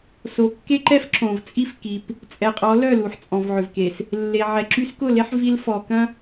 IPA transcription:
so˨kːe˦ǃɛ˦f ǁõ˨v t͡sʼi˦fki˨p | t͡sʼɛ˨qʼɔ˨˦ lœ˦˨lu˨ħ t͡sʼɔ̃˨vʕʏ˨vke˨s | lːe˨ ʕɛ˨ǁy˦s kʊ˦˨le˦ħ vi˦lfɔ˨kɐ̃˦

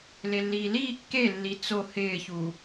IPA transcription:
lelːiːliː kːelːi t͡so hɪːçu

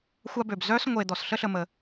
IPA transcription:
xʷa˦bø˩b zœ˥s ŋʷe˨ d̪ɔ˩sɬə˥ɬə˨ mə˩

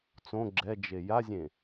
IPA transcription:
t͡sõ ɡ͡ǁɛd͡ʒe jazʲẽ

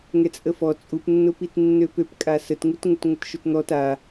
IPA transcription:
ŋɛt͡sʼəfɔ t͡sʼupnːʊ pitnːøpøpkʼa sətŋut ŋʊtŋʷətʃʊtn̪ɔt a

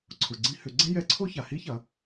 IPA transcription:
ǀʰʊ˩ɡ͡ǀĩ˧˥hʏ˩˧ ɡ͡ǀɛ̃˥jɛ˧˥ǀʰo˥ ça˩hi˧˥çɐ˩˧

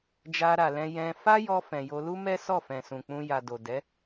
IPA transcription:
d͡ʒa˧ɾa˨lɛ̃˧ jɛ̃˧ fa˦jɔ˧fɛ̃˨ jo˧lu˦mɛ˦sɔ˦˨ fɛ̃˨sũ˨k͡pũ˧ ja˨do˨dɛ˨˦

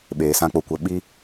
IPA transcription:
ɓeː˧sã˦ k͡po˧kʷə˧ ɓi˦

